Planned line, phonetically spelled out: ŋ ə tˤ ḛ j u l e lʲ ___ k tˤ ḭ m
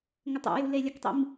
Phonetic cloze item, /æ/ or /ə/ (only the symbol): ə